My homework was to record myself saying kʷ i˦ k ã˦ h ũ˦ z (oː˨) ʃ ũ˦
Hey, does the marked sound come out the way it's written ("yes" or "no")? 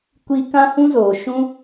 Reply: yes